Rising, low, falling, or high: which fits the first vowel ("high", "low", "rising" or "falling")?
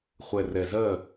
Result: low